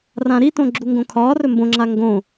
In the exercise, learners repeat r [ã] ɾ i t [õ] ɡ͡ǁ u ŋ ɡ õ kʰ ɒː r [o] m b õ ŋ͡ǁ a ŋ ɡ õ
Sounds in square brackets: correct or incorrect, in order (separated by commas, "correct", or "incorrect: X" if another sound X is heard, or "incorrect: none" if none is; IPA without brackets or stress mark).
correct, correct, incorrect: ɵ